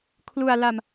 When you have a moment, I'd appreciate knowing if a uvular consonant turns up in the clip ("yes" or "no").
no